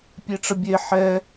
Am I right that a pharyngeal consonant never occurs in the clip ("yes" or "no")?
no